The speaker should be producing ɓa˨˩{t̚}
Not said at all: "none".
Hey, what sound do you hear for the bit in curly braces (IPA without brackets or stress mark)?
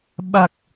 k̚